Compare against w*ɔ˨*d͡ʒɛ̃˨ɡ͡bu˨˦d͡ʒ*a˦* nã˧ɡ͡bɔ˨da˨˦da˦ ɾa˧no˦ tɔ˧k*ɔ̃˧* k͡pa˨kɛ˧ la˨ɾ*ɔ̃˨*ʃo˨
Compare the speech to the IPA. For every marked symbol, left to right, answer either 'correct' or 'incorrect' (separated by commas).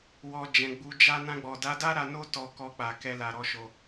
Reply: incorrect, correct, incorrect, incorrect